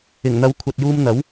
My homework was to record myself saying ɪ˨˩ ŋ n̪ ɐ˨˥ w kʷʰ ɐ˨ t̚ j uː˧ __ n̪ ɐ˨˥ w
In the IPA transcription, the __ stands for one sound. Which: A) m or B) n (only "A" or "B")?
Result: A